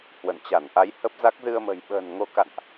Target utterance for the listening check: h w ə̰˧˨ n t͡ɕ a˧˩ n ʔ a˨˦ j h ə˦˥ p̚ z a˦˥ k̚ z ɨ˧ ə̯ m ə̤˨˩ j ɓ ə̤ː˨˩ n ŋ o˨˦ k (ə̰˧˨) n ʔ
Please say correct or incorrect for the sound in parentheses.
incorrect